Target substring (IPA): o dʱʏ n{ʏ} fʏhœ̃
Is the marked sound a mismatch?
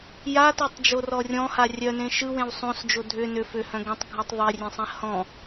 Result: no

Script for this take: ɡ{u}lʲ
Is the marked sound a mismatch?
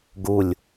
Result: no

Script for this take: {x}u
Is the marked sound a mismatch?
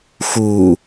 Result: no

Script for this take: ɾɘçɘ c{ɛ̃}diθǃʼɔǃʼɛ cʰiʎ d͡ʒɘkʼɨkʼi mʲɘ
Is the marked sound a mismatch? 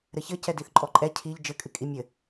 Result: yes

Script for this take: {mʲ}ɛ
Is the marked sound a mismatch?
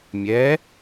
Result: no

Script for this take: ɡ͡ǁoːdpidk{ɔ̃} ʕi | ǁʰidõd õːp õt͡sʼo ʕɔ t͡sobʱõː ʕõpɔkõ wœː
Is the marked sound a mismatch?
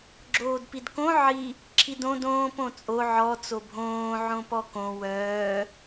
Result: yes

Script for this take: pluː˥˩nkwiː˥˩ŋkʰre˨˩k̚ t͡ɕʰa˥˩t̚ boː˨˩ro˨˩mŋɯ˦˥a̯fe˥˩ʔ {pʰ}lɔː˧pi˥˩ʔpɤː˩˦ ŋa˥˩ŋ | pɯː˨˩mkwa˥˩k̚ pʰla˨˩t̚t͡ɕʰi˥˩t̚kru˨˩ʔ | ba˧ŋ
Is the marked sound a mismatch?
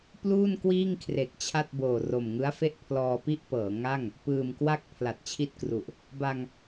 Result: no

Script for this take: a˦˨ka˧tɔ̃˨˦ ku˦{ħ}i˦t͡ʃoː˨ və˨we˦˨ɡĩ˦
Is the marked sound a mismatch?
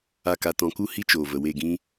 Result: yes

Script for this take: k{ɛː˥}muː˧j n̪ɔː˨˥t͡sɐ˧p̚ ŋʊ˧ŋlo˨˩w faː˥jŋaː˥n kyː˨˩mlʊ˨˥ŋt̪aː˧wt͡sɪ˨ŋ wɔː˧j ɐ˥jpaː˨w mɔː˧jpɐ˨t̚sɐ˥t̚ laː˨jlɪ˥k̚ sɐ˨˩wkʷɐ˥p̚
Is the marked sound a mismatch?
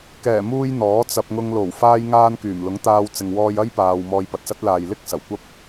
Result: yes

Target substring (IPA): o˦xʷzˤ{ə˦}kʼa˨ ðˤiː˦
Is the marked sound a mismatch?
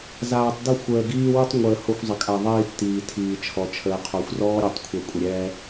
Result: yes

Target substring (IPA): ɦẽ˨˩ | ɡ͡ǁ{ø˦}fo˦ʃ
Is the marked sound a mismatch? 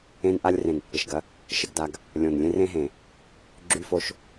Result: yes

